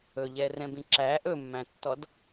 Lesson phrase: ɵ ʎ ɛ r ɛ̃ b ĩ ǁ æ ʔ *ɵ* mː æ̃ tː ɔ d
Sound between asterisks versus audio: correct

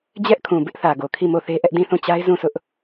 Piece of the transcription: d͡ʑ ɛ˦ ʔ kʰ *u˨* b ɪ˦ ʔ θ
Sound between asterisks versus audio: incorrect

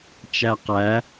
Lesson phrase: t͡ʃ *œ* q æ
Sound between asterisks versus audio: incorrect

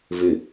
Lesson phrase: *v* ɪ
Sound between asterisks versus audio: correct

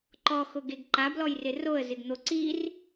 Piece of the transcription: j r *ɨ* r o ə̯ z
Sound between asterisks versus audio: incorrect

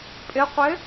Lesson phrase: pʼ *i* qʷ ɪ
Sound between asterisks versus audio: incorrect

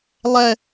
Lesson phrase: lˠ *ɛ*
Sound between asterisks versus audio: correct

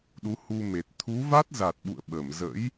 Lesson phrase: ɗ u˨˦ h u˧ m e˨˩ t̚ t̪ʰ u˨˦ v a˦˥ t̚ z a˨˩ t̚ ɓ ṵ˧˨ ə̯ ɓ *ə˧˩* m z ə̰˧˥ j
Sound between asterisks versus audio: correct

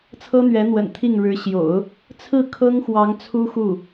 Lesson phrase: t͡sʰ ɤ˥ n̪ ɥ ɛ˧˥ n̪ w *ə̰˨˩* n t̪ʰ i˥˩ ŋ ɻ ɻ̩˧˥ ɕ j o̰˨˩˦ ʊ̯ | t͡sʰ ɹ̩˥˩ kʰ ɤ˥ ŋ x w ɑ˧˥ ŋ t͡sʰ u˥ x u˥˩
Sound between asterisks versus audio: correct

